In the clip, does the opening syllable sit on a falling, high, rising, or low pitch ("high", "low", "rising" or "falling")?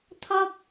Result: high